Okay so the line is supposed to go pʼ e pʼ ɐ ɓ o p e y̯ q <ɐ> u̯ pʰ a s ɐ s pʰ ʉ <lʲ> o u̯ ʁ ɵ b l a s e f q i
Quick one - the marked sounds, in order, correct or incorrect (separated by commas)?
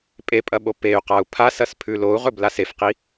incorrect, incorrect